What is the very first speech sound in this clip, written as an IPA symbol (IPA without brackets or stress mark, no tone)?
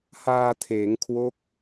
h